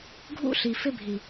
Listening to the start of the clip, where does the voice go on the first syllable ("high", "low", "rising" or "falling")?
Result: high